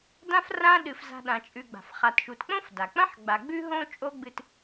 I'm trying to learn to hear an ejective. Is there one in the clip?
yes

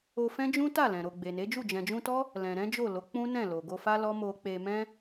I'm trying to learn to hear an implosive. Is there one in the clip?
no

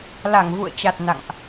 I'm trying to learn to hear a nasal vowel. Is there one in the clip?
no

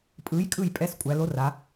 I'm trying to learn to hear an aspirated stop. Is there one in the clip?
no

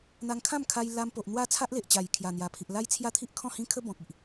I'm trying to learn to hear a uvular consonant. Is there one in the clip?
no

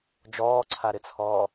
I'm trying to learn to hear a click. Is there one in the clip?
yes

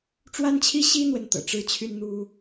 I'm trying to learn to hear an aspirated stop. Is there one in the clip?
yes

